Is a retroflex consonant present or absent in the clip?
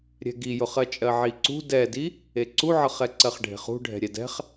present